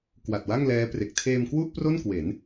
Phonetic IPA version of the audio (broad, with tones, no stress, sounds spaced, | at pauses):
k w a˨˩ t̚ w a˥˩ ŋ l ɛː˦˥ p r e˨˩ k̚ tʰ eː˧ m k w u˥˩ ʔ p r o˥˩ n k w e˩˦ n